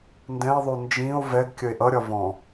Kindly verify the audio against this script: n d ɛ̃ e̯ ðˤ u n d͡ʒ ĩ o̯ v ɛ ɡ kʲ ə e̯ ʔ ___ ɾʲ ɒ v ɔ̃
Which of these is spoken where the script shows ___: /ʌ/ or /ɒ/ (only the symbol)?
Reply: ʌ